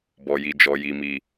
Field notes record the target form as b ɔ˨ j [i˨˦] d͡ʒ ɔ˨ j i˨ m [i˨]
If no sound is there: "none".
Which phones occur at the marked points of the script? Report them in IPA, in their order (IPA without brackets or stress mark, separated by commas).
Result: i˨, i˨